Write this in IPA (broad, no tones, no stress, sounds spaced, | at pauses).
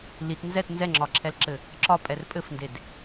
l i t n z ɛ t n z ɛ ŋ͡ǁ ɒ ǁʰ ɛ l ǁ ɘ | ǁ ɒ pʼ ɛ r pʼ ɘ f n d e d